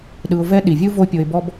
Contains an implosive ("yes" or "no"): yes